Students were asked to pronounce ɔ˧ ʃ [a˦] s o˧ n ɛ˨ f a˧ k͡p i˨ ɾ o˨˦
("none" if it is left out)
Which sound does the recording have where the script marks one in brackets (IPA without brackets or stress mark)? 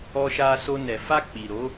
a˧